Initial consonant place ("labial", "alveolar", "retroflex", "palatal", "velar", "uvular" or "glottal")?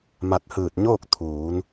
labial